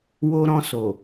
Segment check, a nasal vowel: present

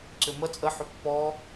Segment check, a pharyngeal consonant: present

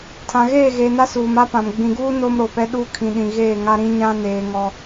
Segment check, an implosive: present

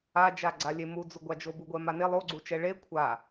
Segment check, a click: present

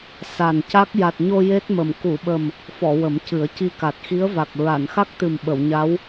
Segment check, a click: absent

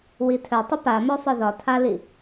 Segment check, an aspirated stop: present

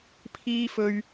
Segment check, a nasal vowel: absent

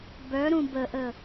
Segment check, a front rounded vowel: present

